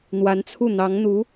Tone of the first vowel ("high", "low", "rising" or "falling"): rising